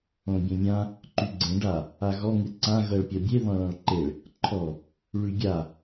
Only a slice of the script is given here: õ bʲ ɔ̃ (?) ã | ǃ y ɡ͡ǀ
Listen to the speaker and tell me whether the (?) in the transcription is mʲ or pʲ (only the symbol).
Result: mʲ